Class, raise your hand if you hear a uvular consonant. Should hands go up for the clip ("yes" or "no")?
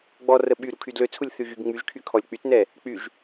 no